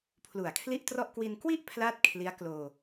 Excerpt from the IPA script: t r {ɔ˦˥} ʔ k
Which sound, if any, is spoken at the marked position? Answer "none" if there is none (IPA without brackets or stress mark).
ɔ˥˩